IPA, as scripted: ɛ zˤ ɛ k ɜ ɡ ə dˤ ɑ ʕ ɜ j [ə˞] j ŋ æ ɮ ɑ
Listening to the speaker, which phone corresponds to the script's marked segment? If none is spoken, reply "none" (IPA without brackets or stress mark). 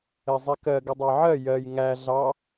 ɜ